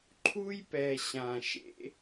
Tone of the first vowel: high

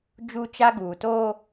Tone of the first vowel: high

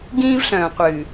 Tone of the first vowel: high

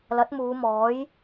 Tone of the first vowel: rising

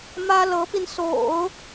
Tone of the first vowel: high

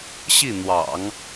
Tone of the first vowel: falling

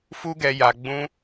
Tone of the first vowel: high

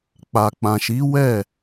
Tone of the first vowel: low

